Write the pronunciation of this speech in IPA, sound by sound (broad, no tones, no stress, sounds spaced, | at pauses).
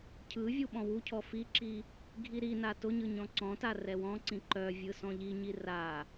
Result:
cʰ ɯ vʲ u ɓ ɔ̃ w u cʰ ɔ f i ǁ i | ɡʱ i ɾ i n a t ʊ ɲ ɯ ɲ ɔ̃ ǀ ɔ̃ t a r ɛ w ɔ̃ ǀ ĩ ǃ œ vʲ ɯ s ɔ̃ ʎ i ɲ i r a